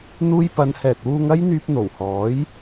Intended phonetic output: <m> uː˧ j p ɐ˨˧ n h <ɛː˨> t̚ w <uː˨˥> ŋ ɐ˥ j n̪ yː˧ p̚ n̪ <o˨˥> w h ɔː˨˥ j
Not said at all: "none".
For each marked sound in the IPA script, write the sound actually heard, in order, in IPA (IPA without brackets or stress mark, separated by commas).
n̪, ɛː˨, uː˧, o˨˩